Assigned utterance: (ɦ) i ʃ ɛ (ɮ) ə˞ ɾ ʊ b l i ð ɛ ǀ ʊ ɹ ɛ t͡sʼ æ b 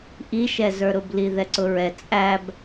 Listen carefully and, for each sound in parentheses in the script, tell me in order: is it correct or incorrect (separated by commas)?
incorrect, incorrect